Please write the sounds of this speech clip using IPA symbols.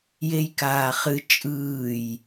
j e j k aː χ ɨ t͡ʃʼ ɯː j

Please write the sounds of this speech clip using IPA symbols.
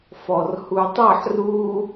f ɔ r h u tˤ ʌ ħ r u

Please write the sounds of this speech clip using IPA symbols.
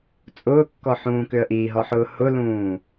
t͡sʼ ʊː kː ɔ ħ ũː k ʏ ə̯ ʔ iː ɦ ɔ ħ ʊː h ʊ l ũː

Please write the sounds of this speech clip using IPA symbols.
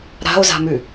ɾ a̤ o̯ z a̤ m ʉ

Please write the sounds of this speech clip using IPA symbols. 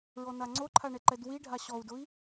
ɹ ɔ n a ŋ͡ǀ o ǃʰ a ɳ ɛ ǃ ɛ d w i ɖʱ a ɕ ɔ u̯ d ʊ i̯

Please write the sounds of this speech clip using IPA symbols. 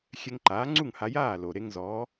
xʲ ɛ˧ ŋ ǃ aː˩˥ ŋ͡ǀ u˥˩ ŋ h a˧ j aː˥˩ l o˩ ɾ e˧ ŋ z ɔː˩˥

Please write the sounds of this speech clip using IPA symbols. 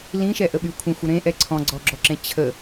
l ĩ ʃ ɛ ʔ ə ɓ y kʷʰ ə̃ xʷ ə ɾ ẽ ʔ ɛ ǀʰ ɔ̃ ɡ͡ǀ ɔ ɡ͡ǁ ɔ ǁ ẽ t͡ɕʰ ə

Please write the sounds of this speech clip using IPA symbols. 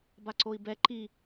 b a ǀ o i̯ b ɛ ǃ i

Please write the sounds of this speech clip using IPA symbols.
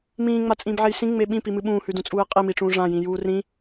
m ĩː ŋ͡m a t͡sʼ ĩː b ʕ e j s ĩ ŋ͡m e ɓ ĩ p i m ɨ ɓ ũː h ʉ d ũ t͡sʼ uː ɪ̯ qʼ i m i ʈ͡ʂ ũː ʐ ã j ĩ j uː r ĩ

